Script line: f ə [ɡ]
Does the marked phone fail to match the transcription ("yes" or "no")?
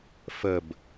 yes